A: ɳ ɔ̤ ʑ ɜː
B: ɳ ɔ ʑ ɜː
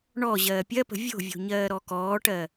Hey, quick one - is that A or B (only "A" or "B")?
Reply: B